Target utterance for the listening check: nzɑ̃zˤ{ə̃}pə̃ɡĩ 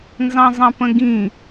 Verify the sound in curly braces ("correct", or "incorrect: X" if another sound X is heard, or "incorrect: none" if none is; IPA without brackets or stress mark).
incorrect: ɑ̃